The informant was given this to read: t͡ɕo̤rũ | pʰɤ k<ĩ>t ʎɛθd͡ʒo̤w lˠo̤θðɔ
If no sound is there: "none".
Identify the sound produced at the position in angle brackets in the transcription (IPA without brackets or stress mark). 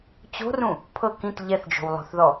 ĩ